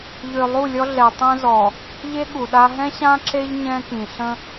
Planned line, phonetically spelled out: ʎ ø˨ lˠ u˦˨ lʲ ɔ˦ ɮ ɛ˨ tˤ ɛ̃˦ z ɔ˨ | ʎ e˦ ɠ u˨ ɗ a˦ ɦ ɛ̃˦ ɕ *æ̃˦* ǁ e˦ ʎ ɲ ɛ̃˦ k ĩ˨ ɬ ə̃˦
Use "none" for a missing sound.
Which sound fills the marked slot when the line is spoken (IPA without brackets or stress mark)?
ã˦